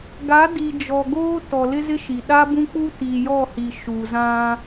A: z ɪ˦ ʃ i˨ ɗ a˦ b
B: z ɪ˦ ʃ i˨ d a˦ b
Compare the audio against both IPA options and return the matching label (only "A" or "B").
A